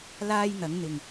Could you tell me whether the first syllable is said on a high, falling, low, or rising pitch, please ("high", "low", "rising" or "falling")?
high